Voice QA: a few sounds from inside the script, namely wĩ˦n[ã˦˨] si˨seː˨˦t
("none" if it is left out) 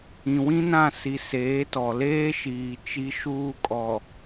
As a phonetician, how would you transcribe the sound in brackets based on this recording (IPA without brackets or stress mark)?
ã˦˨